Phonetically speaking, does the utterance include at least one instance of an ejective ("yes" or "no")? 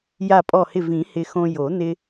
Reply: yes